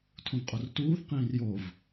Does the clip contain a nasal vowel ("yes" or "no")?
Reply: yes